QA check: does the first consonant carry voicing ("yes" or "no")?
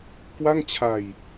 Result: no